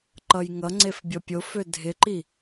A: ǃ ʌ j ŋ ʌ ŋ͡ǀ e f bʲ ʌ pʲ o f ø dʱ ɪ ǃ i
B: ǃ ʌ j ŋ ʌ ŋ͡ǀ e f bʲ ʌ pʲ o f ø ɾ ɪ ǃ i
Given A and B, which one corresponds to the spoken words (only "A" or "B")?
A